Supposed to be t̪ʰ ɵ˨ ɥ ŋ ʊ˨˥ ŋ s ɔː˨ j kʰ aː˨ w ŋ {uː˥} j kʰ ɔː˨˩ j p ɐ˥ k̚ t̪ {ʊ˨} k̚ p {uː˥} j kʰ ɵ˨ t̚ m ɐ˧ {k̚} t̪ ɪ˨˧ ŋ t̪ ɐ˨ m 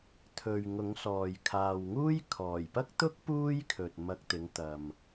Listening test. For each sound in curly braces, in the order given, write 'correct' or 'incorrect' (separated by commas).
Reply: correct, incorrect, correct, correct